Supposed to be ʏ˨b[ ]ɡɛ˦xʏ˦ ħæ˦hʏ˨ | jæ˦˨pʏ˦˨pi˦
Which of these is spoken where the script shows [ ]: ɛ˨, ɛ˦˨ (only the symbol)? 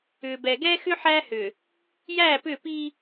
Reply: ɛ˨